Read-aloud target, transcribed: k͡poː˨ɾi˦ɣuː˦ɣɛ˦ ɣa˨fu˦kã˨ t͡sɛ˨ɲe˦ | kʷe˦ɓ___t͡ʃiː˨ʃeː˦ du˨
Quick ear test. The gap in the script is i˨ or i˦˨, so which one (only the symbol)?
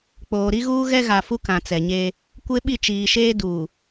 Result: i˦˨